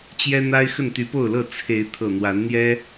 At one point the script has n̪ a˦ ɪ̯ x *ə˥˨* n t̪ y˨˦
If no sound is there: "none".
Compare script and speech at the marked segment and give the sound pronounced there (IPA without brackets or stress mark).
ə˥˨